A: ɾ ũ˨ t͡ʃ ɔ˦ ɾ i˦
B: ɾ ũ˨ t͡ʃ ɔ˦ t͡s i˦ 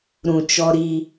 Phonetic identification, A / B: A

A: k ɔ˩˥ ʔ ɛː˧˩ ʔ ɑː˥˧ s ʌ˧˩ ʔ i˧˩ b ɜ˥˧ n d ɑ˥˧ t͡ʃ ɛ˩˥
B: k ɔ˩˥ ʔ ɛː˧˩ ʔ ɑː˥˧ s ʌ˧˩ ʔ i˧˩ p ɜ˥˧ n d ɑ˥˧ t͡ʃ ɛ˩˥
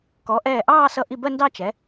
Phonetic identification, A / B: A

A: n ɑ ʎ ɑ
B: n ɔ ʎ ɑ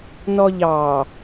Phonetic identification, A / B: B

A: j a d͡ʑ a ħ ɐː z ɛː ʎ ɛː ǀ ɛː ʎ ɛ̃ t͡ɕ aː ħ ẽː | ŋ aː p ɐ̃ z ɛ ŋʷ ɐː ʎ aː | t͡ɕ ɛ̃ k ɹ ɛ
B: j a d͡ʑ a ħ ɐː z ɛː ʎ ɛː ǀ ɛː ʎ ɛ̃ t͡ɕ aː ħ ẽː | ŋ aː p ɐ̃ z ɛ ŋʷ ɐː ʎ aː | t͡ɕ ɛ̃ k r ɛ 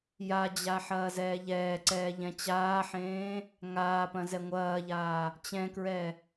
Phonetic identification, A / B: A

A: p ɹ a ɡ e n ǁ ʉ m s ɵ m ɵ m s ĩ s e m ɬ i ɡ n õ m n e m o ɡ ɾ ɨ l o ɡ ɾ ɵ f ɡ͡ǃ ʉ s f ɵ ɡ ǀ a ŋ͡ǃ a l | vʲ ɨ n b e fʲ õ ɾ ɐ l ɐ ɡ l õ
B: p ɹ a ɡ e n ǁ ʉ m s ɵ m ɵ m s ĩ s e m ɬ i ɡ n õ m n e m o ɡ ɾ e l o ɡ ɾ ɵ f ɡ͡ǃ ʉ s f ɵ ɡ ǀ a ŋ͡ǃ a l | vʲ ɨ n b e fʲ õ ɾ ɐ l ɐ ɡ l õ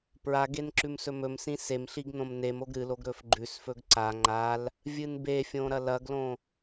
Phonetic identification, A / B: A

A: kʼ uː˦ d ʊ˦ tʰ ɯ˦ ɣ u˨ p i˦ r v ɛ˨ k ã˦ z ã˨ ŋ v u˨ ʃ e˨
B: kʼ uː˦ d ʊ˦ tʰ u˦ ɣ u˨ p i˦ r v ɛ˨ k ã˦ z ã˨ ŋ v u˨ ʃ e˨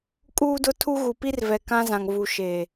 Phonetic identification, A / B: B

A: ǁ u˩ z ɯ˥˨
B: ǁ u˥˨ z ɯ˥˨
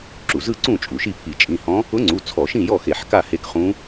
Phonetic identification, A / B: A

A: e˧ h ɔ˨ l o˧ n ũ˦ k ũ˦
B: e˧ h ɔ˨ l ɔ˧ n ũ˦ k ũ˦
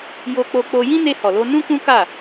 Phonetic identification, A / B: A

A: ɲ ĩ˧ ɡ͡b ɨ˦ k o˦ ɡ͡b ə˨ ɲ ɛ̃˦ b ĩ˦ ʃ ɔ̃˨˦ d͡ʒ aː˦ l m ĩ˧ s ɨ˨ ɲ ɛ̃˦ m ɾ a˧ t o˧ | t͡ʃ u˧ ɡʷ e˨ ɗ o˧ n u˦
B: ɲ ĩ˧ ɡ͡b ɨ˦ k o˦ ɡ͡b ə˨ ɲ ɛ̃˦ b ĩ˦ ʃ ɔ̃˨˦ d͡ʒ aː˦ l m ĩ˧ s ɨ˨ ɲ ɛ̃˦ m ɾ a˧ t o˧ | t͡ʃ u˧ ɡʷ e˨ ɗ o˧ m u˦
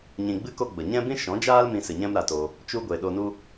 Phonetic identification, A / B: A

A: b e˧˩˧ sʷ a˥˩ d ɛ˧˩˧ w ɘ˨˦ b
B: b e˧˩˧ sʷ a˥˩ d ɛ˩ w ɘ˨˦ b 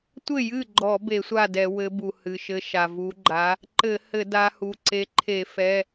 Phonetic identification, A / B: A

